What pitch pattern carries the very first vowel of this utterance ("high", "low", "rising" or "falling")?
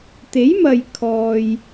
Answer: rising